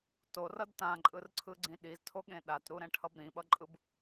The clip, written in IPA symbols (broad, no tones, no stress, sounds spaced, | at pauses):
t o r ʌ d t ã ǃʼ ɯ r ǀʰ ɯ ɡ͡ǀ ĩ ɗ i z tʰ o ɠ ẽ ɗ a t ɾ u ɾ ɛ̃ ʈʰ ʌ b ɾ ĩ ɓ ʌ ǃʼ ɯ b